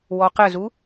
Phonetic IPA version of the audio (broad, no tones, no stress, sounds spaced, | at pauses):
w ɔ q ə z u